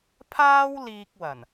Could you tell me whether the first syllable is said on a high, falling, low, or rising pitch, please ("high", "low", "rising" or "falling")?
high